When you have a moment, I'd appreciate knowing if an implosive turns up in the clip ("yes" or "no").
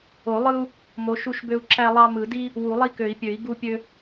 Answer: no